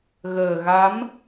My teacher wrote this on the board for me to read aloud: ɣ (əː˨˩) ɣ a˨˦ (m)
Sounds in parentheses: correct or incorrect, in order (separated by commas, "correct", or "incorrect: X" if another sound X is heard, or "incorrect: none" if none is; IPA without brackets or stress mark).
correct, correct